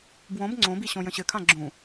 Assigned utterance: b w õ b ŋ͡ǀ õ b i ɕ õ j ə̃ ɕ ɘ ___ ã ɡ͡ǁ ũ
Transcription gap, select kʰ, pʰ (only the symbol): kʰ